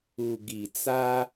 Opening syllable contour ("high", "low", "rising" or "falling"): low